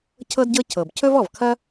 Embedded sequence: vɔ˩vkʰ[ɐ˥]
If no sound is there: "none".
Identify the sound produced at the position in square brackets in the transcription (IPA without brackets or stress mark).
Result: ɐ˥